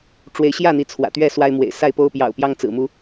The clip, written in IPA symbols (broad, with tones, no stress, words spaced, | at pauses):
ʈ͡ʂwe˨˦ɪ̯ɕjä˥˨n̪i˨˦ t͡sʰwä̰˨˩t̪ɥɛ˥˨swa˦ɪ̯mwḛ˨˩ɪ̯ sa˥˨ɪ̯po˦ʊ̯pjɑ̰˨˩ʊ̯ pjɑ˦ŋt͡sɹ̩˨˩mu˨˦